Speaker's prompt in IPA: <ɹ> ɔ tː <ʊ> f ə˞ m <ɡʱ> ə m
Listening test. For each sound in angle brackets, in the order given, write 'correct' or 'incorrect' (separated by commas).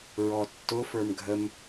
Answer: correct, correct, correct